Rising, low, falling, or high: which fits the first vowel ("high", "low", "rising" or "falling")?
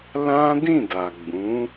high